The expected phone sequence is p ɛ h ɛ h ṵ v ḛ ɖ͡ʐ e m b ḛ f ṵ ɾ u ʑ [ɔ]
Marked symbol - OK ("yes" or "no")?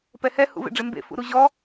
yes